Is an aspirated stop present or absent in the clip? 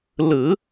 absent